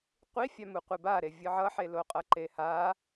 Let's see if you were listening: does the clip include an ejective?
yes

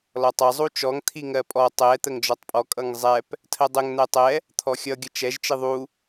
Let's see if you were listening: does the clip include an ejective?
yes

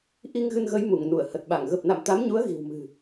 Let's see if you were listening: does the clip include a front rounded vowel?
no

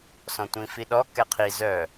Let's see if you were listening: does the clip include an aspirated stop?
yes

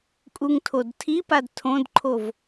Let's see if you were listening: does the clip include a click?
yes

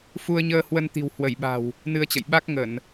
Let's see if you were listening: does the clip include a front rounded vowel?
no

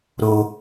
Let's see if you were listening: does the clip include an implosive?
no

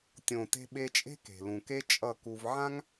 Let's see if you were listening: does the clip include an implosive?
yes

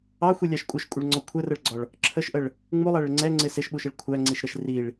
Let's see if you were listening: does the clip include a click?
yes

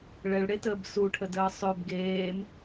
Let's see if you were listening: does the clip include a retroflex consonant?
yes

